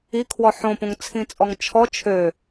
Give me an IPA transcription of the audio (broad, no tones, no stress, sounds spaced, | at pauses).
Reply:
i kʰ w ɔ ħ õ p õ ŋ t͡sʰ ĩ t͡sʼ ɔ ŋ t͡ʃʰ ɔ t͡ʃʰ ø